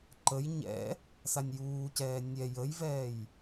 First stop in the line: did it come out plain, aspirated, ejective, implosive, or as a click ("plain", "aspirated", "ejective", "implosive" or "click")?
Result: click